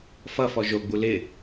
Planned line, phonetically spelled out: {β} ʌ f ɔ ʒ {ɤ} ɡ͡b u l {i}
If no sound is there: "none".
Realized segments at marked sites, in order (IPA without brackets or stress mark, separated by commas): f, o, ɪ